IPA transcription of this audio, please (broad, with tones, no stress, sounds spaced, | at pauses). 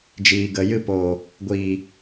d͡ʒ iː˨ ɡ ə˨ j ɨ˧ p oː˨ | ɡʷ iː˨